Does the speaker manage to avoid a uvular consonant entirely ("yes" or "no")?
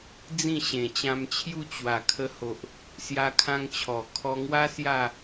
yes